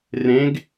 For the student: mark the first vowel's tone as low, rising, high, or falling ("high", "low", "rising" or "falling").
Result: rising